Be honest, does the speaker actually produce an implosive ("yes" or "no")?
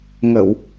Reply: no